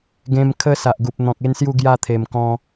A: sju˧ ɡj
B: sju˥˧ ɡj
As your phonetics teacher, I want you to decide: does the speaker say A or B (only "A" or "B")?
B